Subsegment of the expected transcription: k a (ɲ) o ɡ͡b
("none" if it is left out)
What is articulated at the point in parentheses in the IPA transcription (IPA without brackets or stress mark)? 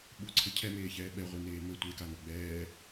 n